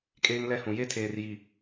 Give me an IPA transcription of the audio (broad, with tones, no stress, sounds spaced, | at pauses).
kʼ eː˦ ŋ l ɛ˦ h ũ˨ j e˦ tʰ eː˨ r j i˨